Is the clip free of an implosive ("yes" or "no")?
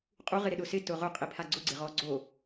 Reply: no